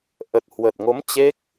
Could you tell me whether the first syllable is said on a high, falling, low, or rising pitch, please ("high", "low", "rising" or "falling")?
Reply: low